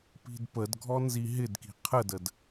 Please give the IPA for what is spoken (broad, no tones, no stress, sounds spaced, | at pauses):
p i̤ d p ə d ɡʱ ɔ n z i ɦ ɪ d k i̤ qʰ ə d ə d